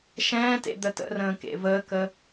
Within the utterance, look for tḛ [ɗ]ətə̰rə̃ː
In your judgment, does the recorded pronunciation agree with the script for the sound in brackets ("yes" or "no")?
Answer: no